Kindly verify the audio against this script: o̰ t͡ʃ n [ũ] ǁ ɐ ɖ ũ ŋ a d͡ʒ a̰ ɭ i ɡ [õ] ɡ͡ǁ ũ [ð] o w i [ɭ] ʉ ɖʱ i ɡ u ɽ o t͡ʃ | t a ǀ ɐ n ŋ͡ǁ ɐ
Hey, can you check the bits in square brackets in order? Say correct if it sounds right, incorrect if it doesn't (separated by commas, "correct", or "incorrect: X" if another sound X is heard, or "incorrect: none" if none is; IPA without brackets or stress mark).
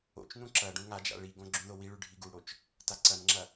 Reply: correct, correct, correct, correct